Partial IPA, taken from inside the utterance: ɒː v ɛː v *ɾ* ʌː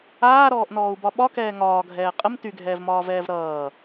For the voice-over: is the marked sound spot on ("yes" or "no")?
yes